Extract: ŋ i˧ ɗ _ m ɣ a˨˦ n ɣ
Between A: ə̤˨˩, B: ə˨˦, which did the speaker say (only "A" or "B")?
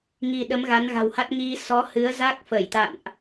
B